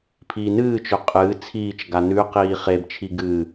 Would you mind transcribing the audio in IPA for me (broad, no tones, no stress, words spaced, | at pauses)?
pʰiːnɨːt͡ʃɵ qʼɨː t͡sʰiːt͡ʃɡa nʉqiː χebt͡ʃʰi ɡɨː